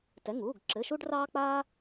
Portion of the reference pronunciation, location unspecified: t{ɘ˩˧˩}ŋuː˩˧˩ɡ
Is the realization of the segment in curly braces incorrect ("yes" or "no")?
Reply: yes